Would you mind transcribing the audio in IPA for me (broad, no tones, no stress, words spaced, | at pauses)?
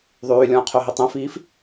ðˤyːlʲɔ̃ː qʰoɦitˤɛ̃fiːf